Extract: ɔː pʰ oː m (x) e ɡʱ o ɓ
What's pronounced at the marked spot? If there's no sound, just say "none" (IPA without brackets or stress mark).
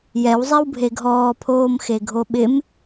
x